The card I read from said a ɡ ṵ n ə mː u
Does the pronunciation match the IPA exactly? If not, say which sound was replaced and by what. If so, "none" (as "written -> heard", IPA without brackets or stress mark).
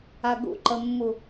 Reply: n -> ǃ